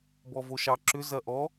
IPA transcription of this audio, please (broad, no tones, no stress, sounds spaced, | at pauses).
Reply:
b ɔ v o ʃ ɑ ǁ ʏ z ɐ ʔ ɔ